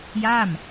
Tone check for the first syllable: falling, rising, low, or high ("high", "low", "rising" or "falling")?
falling